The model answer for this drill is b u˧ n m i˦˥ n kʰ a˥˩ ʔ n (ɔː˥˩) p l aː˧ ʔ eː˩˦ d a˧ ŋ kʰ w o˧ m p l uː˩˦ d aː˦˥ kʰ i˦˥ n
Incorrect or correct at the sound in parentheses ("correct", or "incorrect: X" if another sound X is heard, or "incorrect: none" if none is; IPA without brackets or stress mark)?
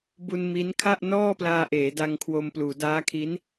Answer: correct